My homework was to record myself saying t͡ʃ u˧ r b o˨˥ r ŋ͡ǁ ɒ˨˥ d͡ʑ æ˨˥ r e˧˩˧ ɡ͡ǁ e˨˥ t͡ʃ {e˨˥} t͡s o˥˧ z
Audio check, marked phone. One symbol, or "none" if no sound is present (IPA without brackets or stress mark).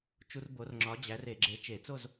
e˧˩˧